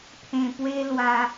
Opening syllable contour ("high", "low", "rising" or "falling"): low